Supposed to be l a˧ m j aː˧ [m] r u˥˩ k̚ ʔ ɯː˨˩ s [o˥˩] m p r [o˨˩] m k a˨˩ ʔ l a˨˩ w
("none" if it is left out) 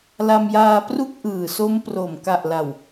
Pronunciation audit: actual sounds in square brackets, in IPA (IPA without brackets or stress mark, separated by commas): p, o˦˥, o˨˩